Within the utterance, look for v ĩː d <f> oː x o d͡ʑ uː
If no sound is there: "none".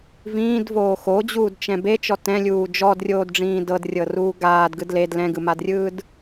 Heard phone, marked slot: v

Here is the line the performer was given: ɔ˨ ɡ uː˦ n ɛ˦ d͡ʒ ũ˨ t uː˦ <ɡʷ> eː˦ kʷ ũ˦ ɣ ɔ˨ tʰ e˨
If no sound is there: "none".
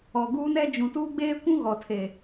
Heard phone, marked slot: ɡ͡b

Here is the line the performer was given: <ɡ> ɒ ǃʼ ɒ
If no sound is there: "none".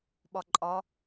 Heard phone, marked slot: ɓ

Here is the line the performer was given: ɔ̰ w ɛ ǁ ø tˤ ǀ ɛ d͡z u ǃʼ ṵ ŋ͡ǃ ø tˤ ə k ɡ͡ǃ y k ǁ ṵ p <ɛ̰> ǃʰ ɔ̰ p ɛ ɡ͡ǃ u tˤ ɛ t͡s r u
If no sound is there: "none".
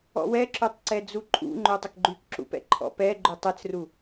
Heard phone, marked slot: ɛ̰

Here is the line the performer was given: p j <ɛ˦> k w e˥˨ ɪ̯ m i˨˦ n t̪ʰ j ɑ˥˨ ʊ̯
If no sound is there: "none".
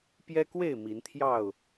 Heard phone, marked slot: ɛ˦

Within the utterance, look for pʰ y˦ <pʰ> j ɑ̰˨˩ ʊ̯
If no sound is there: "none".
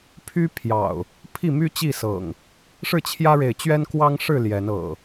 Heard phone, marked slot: pʰ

